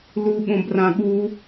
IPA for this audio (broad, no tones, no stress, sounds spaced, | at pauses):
l u ɠ õ b r ã ɠ u